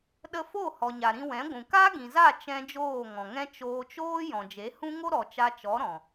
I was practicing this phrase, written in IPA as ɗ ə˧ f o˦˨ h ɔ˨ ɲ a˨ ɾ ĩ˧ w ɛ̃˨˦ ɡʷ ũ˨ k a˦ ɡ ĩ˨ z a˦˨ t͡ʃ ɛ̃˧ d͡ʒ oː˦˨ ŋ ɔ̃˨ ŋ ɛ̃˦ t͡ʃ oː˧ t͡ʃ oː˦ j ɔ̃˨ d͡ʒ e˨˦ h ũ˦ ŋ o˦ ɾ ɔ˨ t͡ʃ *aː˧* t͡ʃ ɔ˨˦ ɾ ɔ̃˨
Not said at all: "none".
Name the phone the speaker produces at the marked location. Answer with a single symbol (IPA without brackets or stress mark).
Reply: a˧